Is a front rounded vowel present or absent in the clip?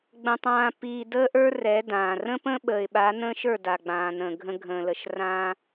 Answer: absent